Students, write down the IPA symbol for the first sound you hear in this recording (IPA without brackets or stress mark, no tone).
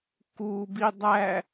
k